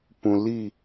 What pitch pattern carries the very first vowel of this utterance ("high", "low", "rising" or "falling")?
low